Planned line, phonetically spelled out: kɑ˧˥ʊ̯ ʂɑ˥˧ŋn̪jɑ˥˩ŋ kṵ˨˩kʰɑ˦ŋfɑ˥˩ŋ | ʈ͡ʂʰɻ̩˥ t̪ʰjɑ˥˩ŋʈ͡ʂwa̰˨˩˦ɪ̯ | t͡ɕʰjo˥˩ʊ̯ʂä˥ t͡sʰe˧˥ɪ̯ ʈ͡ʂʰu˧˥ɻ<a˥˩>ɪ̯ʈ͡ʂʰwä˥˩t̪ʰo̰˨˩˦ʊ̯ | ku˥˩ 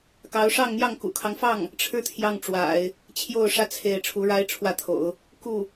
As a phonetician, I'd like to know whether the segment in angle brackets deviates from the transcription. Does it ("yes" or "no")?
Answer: yes